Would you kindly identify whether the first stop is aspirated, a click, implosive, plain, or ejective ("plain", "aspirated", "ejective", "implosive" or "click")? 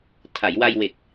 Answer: aspirated